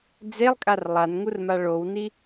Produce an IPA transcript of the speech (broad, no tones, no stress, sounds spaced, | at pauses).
d͡z e lˠ kʼ a r lˠ a n ŋ u r m a ɭ o w n i